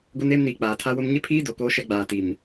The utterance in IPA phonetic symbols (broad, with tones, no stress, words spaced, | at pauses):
ɡo˦neː˦mniː˨ k͡paː˨tʰa˦wʊ˦m ɲɪ˦pʰiː˦ do˨koː˦ʃɛ˦ɡ͡baː˨ ti˨m